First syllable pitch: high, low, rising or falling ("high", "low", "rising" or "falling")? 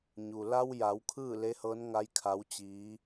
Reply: low